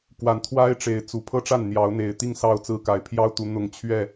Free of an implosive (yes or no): yes